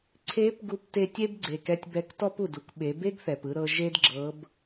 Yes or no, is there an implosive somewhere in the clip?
yes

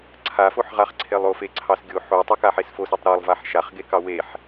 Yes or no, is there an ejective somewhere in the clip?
no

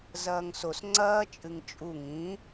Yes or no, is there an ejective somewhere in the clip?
yes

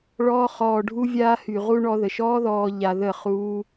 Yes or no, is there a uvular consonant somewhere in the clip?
yes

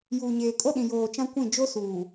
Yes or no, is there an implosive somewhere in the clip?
yes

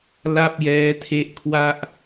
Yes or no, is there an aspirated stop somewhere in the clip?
yes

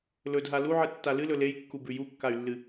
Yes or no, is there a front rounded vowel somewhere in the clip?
yes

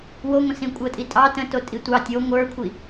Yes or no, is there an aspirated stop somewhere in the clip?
yes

